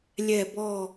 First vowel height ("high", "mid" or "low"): mid